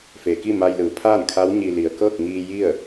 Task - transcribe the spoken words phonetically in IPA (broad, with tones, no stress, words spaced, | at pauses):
fe˩ki˥˨ ma˧jlɯː˩ pʰaː˥˨nkʰa˧˥wɲi˧ li˩ə̯kɤː˥˨k̚ ŋiː˧ ji˥˨ə̯